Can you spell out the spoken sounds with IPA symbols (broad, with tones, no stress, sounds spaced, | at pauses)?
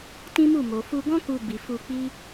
t ĩ˦ m u˦˨ m o˨ f u˧ ɡ ɔ̃˦ k u˧ b i˨ f u˧ k͡p i˦